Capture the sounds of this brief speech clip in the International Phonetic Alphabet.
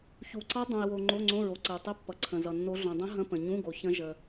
çu˨ǀʌ˦˥ dˤũ˨e̯wo˨ ŋ͡ǃo˧˥˧ŋ͡ǀõ˧˥˧ɹo˨ ǀə˨o̯tˤə˧˥˧pːʌ˨ ǀʰə̃˨zʌ˨nːo˦˥ ɮõ˨dˤə̃˦˥ ɦə̃˧˥˧pə̃˨ ɲũ˧˥˧ɡo˨ çə̃˦˥ ʒə˨

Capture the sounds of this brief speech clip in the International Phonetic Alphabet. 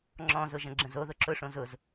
ŋ͡ǁɔ̃zʊʒə̃ ɡ͡ǁə̃zoðʊ ǁʊʂõ zʊz

